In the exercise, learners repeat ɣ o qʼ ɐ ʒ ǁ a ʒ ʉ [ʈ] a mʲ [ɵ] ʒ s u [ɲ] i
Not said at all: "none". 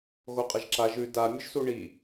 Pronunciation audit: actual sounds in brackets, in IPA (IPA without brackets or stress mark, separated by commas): d, ɵ, ɳ